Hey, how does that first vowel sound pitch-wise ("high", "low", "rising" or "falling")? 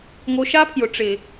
rising